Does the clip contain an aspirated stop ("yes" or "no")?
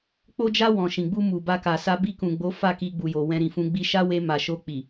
no